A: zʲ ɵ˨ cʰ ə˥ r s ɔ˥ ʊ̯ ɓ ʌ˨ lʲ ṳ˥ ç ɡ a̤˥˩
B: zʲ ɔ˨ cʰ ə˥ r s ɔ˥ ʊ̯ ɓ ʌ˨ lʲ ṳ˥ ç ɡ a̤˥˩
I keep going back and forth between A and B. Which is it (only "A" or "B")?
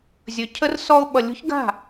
A